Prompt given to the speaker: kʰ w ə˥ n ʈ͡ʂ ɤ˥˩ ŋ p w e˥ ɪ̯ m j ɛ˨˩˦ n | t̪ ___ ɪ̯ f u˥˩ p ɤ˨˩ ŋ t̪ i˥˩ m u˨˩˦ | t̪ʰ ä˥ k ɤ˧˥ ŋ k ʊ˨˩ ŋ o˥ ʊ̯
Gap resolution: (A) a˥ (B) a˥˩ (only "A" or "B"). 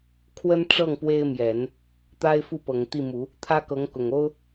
A